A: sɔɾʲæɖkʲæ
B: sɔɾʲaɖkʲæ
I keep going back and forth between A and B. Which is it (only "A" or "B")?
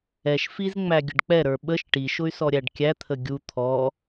A